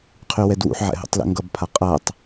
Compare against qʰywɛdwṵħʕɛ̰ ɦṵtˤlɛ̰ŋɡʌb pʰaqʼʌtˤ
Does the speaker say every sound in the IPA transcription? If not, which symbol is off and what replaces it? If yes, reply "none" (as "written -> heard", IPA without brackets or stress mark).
none